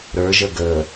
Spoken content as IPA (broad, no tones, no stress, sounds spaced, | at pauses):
ɾ ə˞ ʒ ə ɡ ə